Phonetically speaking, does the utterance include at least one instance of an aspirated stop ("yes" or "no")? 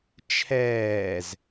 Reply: yes